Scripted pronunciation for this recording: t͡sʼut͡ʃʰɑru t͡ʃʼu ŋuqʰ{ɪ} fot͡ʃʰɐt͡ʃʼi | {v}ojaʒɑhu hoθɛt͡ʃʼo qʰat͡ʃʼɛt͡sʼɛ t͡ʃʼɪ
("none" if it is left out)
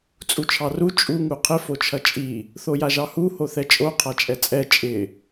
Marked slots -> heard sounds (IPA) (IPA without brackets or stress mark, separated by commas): ɪ, θ